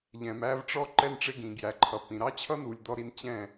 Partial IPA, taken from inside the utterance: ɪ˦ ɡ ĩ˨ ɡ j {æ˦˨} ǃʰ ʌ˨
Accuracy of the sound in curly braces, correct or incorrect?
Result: incorrect